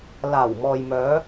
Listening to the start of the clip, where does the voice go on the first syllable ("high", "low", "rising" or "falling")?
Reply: low